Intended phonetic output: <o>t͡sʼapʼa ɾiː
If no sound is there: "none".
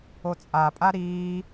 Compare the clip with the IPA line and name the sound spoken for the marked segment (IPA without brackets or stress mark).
o